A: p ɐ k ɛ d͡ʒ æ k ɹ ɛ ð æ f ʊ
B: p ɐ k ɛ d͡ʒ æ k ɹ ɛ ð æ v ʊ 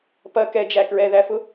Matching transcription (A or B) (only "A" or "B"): A